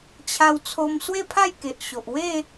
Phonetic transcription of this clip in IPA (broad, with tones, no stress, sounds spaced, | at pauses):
t͡ɕʰ a˧ w t͡sʰ o˧ m s w e˥˧ pʰ a˥˧ j k e˨ ʔ ɕ o˨ ʔ w e˥˧